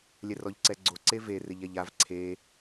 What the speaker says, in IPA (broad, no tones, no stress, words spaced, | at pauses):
lʲɛrɔʎǀɛɡ͡ǀo ǀeve rɪʎɛʎav ǀʰe